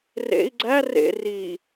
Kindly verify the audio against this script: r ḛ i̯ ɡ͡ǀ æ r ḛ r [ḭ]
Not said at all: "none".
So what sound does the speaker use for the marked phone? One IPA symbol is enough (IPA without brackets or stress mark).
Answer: i